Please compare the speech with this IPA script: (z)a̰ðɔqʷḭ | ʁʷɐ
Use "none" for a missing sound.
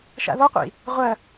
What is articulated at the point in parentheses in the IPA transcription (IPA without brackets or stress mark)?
ʃ